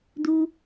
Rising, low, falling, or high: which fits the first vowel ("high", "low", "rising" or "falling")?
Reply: high